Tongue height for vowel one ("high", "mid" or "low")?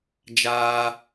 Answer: low